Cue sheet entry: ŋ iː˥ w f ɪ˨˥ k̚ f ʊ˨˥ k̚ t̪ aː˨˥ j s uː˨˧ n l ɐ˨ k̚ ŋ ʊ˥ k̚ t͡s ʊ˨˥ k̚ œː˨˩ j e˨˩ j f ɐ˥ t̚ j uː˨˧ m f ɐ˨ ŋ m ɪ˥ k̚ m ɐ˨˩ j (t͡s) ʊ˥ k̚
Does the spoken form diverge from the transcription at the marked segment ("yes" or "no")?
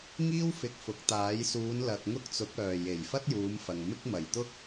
yes